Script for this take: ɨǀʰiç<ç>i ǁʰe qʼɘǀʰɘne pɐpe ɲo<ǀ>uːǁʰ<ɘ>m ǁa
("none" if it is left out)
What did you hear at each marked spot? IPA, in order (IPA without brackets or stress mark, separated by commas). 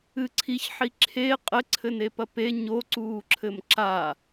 ħ, ǀ, ɘ